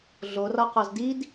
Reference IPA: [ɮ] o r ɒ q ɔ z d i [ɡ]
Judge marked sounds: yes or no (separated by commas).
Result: yes, no